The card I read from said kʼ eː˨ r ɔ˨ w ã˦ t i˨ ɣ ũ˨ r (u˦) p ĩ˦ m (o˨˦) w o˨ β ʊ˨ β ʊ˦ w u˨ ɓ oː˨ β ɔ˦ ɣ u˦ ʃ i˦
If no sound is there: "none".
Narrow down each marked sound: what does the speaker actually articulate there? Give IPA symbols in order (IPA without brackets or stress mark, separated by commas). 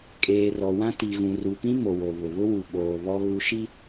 u˨, o˨